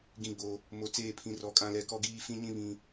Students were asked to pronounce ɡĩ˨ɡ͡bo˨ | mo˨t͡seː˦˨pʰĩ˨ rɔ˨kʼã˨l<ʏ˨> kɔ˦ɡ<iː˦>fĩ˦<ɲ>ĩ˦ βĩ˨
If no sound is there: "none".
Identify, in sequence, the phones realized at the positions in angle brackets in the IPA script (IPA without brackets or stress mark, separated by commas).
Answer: ɛ˨, iː˦, ɲ